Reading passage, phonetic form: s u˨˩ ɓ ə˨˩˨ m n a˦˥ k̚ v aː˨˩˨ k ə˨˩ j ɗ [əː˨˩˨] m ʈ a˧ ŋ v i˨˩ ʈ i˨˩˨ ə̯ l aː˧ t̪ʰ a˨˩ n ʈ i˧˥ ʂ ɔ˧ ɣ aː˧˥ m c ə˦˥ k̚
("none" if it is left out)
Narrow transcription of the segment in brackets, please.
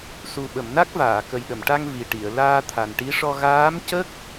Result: ə˨˩˨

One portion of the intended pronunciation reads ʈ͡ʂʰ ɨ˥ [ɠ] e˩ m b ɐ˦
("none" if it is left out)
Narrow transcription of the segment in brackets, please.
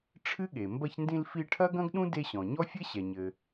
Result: ɠ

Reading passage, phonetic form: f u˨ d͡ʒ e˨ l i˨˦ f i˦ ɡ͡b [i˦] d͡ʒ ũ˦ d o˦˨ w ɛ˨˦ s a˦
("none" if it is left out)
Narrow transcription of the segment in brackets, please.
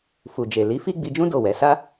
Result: i˧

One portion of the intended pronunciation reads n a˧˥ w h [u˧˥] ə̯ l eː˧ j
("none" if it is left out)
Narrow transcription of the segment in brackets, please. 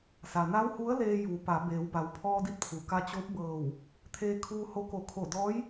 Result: u˧˥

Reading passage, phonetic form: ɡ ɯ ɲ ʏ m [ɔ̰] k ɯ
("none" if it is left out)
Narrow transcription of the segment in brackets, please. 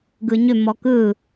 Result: ɔ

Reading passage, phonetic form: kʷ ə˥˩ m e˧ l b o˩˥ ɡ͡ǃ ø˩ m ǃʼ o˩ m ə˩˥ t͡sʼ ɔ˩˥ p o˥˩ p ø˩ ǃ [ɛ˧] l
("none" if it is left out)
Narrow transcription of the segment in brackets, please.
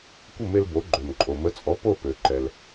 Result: ɛ˩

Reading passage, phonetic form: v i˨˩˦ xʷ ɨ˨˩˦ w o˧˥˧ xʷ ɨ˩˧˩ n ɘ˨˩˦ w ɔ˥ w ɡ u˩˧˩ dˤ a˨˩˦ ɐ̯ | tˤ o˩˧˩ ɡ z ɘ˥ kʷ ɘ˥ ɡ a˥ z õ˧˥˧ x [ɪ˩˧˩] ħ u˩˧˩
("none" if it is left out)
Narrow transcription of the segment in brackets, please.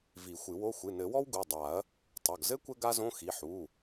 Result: i˩˧˩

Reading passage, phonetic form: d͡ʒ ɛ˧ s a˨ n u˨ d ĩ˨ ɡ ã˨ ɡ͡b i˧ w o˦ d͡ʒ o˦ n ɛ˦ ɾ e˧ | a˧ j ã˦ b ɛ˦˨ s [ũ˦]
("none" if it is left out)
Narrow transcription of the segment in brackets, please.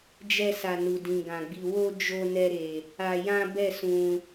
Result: ũ˧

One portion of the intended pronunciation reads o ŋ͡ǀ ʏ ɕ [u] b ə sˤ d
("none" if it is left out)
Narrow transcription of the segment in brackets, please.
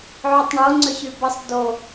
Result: y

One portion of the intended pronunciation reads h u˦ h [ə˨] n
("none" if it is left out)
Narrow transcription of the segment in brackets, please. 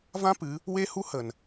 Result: ə˨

